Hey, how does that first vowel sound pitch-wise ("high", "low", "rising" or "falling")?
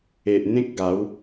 low